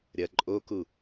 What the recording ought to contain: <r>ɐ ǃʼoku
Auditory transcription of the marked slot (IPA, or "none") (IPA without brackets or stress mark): ɾʲ